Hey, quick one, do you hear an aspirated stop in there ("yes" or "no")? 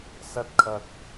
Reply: yes